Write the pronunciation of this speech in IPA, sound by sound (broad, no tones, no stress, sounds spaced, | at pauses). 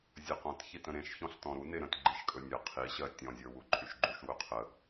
zʲ ə q ɔ̃ t ç i t ə̃ ɾ ẽ ʃ ç ɔ̃ ɬ t ɔ̃ ɾ u n e ɾ ə̃ t ɡ͡ǃ i ʃ kʼ ɵ nʲ ə qʰ i ɕ ɜ tʲ ɔ̃ zʲ ə˞ w u ǃʼ y ʃ ɡ͡ǃ u ʃ w ɵ qʰ ə